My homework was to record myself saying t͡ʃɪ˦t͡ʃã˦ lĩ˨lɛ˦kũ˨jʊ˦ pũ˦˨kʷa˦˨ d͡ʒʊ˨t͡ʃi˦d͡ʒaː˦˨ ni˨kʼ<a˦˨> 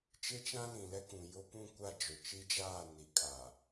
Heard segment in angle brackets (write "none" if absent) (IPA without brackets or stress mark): a˨